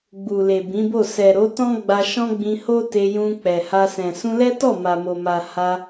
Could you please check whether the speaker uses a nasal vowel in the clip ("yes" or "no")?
yes